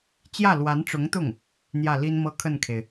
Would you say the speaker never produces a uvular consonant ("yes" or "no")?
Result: yes